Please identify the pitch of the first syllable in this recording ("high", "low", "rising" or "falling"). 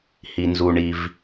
low